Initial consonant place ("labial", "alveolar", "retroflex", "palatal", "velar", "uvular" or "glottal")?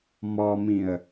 labial